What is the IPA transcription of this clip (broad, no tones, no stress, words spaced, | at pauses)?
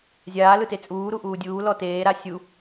zʲaːlɯte t͡sʼuːɾuʔuː dʲuːlɔ teːɾa sʲu